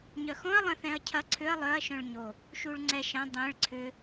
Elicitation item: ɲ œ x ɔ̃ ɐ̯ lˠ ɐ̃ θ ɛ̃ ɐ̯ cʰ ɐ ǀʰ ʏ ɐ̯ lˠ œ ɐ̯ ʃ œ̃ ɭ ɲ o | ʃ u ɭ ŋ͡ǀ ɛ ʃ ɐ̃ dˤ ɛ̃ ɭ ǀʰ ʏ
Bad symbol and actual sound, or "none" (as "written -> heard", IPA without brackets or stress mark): none